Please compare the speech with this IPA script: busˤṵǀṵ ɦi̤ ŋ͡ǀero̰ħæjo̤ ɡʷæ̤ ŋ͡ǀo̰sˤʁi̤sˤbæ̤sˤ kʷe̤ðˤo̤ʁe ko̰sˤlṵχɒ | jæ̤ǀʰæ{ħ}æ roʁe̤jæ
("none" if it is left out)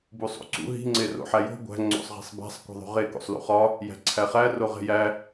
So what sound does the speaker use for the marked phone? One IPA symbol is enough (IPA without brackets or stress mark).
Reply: χ